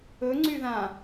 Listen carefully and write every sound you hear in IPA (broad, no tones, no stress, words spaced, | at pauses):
ɵ ŋ͡ǀyðã